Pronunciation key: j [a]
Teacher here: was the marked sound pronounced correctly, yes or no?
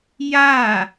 yes